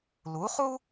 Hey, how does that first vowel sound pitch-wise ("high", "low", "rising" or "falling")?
rising